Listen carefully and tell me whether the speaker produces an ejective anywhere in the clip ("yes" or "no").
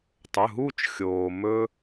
no